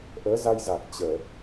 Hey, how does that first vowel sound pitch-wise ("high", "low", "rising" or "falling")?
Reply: rising